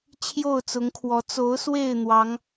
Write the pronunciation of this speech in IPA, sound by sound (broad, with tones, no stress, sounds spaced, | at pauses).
t͡ɕʰ j o˥˨ ʊ̯ t͡s ʊ˨˦ ŋ kʰ w ɔ˨˦ t͡s o˨˦ ʊ̯ s w e˥˨ ɪ̯ n̪ w ɑ˨˦ ŋ